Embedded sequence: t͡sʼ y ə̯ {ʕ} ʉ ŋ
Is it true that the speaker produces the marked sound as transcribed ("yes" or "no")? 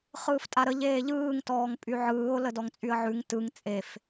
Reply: yes